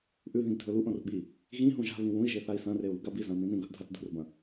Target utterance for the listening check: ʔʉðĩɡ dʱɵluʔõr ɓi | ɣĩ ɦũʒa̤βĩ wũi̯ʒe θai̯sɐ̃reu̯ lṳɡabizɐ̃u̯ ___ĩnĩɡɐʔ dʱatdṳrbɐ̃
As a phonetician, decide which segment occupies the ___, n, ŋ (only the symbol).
n